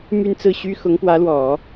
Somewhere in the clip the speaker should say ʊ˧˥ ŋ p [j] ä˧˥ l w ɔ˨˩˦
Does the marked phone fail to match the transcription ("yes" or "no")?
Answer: yes